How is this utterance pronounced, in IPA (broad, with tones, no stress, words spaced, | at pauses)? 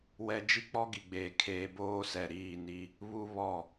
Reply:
wɛ˦ d͡ʒi˦k͡pɔ˦ɡi˨ɡ͡beː˨ kʰeː˦ boː˦sɛ˨ɾiː˦˨ni˦ | βu˦ βɔ˦˨